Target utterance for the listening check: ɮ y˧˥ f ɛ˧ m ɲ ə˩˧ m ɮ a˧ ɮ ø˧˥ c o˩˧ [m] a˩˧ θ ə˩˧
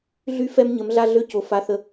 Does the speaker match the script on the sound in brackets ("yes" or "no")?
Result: no